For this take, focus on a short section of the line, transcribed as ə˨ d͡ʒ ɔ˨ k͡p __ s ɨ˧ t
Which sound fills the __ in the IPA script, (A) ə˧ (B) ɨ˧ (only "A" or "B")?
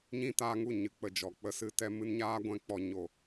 A